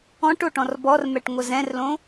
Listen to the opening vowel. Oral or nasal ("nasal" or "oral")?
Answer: nasal